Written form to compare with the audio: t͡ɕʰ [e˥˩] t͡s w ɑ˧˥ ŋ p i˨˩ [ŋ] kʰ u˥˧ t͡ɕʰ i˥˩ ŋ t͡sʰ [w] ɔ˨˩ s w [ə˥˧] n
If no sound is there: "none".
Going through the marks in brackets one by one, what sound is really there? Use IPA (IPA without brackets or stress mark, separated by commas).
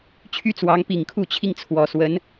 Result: y˥˩, ŋ, w, ə˧˥